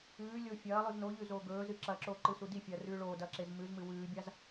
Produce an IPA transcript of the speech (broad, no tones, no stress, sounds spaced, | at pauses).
ʉː lʲ o fʲ ɐː lˠ ʉ z n o ʎ ʉ z oː ɡ ɵː z ɨ ǁ ɐ ǁ oː ǃ ɨ s u d i fʲ ɐː r ʉː ɭ oː d ɐː ǁ e z m ʉ z m ɨ w ʉː bʲ a z